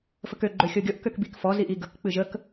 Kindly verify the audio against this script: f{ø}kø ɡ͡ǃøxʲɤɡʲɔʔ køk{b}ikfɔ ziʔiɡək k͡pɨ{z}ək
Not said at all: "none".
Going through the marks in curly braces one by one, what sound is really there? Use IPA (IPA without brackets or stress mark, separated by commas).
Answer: ə, b, ʒ